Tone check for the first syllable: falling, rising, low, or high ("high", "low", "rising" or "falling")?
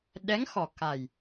rising